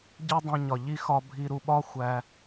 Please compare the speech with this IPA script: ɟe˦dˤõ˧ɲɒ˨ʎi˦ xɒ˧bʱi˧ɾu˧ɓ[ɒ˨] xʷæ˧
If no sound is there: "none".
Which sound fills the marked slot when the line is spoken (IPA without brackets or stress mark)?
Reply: ɒ˦